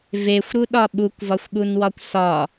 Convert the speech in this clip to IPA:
vexʷɾuɗɒ ɓukʷvɒxʷɠunwɒkʷ sɒ

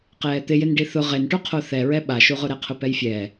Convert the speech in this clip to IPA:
qɛːt̪ɪjɪnɖi θʊ ʁenʈu qʰoθɛɹɛ ɓaʃuʁʊ ɾɛqʰʊpɛjfʲɛː

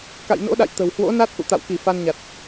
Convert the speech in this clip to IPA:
ka̰˧˨jno̰˧˥ɗa̰˧˨j t̪ə̤˨˩whwo̰˧˥na˦˥t̚ ʔṵ˧˨t̪a̰˧˨wki˧˩ fa˧nɲa˨˩t̚

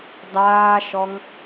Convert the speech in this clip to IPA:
dˤaːʃɔŋ

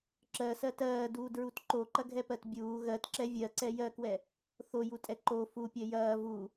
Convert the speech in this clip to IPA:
ǁɜsɜ tɜːduːdɹut ǃoǃɐɡʱɛpɜt bʲuː ɣɜtǁɛ vʲɜǀɛ jɜkwɛ | θojutʼɛ ǃo fupʲɜ jɐː vu

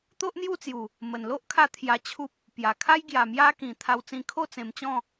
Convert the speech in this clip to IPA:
t̪o˦ʔn̪ju˥˧ t͡sju˨˩ | mə˨˩n lo˦ʔkʰa˧ t̪ʰja˧t͡ɕʰu˦p̚ | pja˨˩kʰa˦j ɡja˨˩mja˧kĩ˨˩ t̪ʰa˧wt͡sĩ˧ kʰo˥˧t͡sẽ˧mt͡ɕɔ̃˥˧

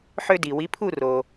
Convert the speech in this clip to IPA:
ħø˧di˩wi˩˥pʰu˥˩ ro˩

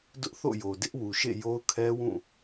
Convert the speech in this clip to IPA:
dʊ˦ʔθo̰˦˨jo˨ dɪ˦ʔwu˨ʃḛ˦˨ jo˦ʊ̯kʰɛ˦wũ˦˨

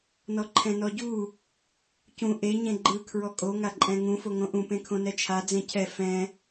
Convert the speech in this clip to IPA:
nɔǃʰɛ̃nɔɟu | cũ ʔe ɲẽɡ͡ǃɯ kʰɹɔkʼo ŋaǃʼɛ̃ŋũ foŋõʔũ pẽkʰõnɛt͡ʃʰa d͡zẽcʰɛ fɛ̃

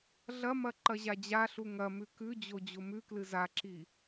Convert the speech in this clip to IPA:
ɮɐmɐ ǃɐʑad͡ʑaɬu ŋɐmʉ kʉd͡ʑo d͡ʑomʉklɨ zaǁi

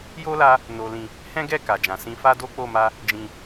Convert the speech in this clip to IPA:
jo˦la˧ | no˨lĩ˨ | hɛ̃˦ɡɛ˦˨ ka˨d͡ʒã˨sĩ˧ fa˦do˦k͡po˦˨ma˧ | d͡ʒĩ˨

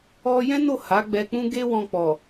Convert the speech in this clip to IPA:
ɔ˧ jɛ̃˦no˦˨ ha˨˦ɡ͡bɛ˧k͡pũ˦ ɡe˦wɔ̃˧k͡pɔ˨

